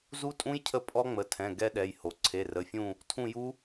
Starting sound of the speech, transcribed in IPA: z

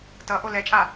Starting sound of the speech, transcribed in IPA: t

